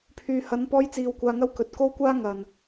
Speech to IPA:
pʰ yː˨ h ɐ˨˧ n p ɔː˧ j t͡s iː˧ w kʷ aː˧ ŋ ɐ˥ w k ɵ˨˥ t̚ k o˥ w kʷ aː˥ ŋ ɐ˨ n

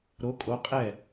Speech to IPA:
ɾ o˧˥ kʼ o˧˥ qʼ ɛ˦˨

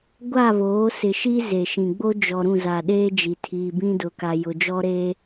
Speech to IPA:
ɡʷ a˦˨ β oː˨˦ s ɪ˨ ʃ i˦ z e˨ ʃ ĩ˨ ɡ͡b o˦ d͡ʒ ɔ˨ ɾ ũ˦˨ z a˨ ɗ eː˦ d͡ʒ i˨ tʰ iː˨ b ĩ˦ d ʊ˨ k a˨ j ʊ˨ d͡ʒ ɔ˦ ɾ e˦

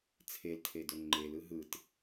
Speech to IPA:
t͡sʰ e l tʰ e d ɵ ŋ͡ǃ e l ɯ ɦ ɯ t

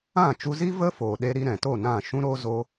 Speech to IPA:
ã˦˨ t͡ʃ u˧ z i˦ v ə˦ f oː˨ ɗ e˧ ɾ i˧ ɾ ɛ̃˨ t o˦˨ n ã˦˨ ʃ ũ˦ ɾ o˦ z o˧

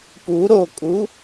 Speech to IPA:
p u ɾ o kʼ u

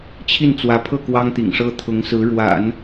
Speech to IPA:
t͡ɕʰ i˥˩ n t͡s w ä˧˥ pʰ ɤ˥˩ k w ɑ˥ ŋ t̪ ḭ˨˩ ŋ ʂ ɤ˥ t̪ʰ ʊ˧˥ ŋ s ɹ̩˧˥ ɻ w a̰˨˩˦ n

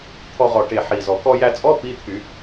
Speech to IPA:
t̪ʰ ɔ˧ ʁ ɔ˨˩ ʈ e˨˩ ħ i˨˩ z ɔ˨˩ k ɔ˧ j æ˧ t͡sʼ ɔ˧˥˧ p i˧˥˧ t̪ʰ y˨˩˦

